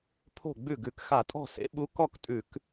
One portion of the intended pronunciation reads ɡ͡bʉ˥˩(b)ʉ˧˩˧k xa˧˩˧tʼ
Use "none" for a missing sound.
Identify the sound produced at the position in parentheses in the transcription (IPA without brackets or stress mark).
ɡ